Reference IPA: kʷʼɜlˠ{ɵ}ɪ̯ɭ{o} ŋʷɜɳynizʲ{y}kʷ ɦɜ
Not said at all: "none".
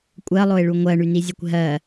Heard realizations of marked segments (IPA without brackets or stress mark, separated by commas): o, u, e